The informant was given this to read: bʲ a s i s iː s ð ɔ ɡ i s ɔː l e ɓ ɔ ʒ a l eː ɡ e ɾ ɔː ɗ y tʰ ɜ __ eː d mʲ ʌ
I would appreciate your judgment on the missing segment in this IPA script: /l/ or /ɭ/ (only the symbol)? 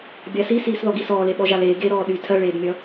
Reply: ɭ